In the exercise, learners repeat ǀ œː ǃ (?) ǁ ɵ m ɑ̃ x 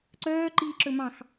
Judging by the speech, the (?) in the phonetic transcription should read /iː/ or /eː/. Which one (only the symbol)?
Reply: iː